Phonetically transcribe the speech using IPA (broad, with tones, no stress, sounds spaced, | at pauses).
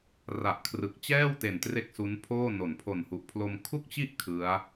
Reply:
r a˨˩ ʔ kʰ r ɯ˨˩ k̚ t͡ɕ ɛː˥˩ w t e˨˩ n t r e˥˩ k̚ s u˦˥ n pʰ oː˥˩ n o˩˦ n pʰ o˨˩ n h u˨˩ ʔ pʰ l o˧ m kʰ u˥˩ k̚ t͡ɕ i˥˩ ʔ kʰ ɯ˦˥ a̯